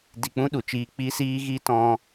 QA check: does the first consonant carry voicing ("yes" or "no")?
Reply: yes